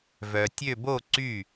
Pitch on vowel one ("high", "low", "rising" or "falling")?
low